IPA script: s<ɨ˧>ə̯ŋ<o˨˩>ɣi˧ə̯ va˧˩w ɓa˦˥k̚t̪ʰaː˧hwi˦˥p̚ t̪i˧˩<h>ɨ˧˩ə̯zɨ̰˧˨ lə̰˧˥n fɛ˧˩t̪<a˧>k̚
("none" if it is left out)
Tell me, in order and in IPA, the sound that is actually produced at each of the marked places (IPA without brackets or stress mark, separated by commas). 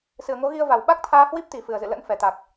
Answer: ɨ˧˩, o˨˦, f, a˨˩